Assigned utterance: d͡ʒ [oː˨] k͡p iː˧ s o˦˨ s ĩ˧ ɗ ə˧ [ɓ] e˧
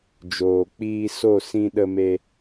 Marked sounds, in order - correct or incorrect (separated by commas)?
correct, incorrect